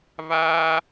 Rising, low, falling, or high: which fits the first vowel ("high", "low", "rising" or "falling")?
high